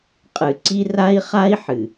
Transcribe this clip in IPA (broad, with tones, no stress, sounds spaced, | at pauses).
qʼ ɨ˨ ǀ i˦ r a˦ i̯ χ a˦ i̯ ħ ɨ˨